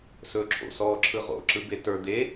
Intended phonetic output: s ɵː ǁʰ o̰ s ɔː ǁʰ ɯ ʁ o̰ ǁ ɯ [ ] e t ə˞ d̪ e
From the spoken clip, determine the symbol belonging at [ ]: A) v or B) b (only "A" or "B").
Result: B